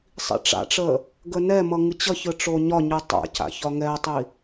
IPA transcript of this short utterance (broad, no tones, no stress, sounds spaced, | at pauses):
sˤ ḭ ʈ͡ʂ a̰ ʈ͡ʂ ə | ɡ ə n ɛ m ʌ ŋ ɨ t͡ɕ ʌ ç ɯ ʈ͡ʂ o ɲ ɒ ɲ ɯ tˤ a̰ c a̰ ç ɒ ŋ ɛ tˤ i